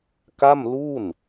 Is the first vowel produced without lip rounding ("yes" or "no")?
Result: yes